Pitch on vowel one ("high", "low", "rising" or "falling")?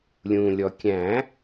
low